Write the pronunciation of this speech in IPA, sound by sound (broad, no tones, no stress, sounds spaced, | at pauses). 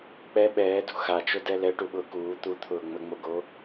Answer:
k͡p ɛ ɓ ɛː d ṳ x a t͡ʃ o d ɛ l ɛ ʈ u ɓ ʊː k uː t̪ u t̪ʰ ʊː ŋ͡m ə ŋ͡m o ɡ o